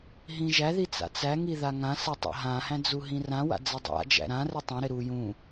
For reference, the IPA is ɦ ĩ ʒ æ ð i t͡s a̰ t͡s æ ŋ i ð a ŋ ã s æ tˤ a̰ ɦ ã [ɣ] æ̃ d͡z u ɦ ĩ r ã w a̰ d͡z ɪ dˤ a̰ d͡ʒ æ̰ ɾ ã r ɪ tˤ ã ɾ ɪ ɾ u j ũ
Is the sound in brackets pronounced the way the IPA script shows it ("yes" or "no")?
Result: no